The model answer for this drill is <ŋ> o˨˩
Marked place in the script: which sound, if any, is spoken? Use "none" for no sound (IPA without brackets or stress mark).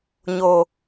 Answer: ɲ